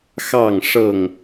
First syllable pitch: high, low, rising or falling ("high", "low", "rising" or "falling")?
falling